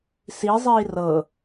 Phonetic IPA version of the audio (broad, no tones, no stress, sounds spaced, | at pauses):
s i zˤ iː r ɤ